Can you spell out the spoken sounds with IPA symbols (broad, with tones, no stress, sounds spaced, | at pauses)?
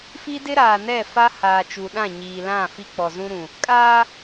f i˦ d ɪ˦ ɾ aː˨ n ɛ˦˨ f a˦ h aː˨ t͡ʃ u˨ ɗ ã˦˨ ɲ iː˨ l ã˦˨ f i˦ k͡p ɔ˨ z ũ˦ ɾ ũ˨ | kʼ aː˦